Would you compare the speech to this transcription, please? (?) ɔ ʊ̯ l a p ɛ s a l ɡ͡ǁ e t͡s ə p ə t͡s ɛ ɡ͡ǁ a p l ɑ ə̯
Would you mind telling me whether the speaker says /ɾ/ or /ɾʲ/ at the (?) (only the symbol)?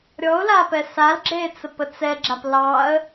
ɾʲ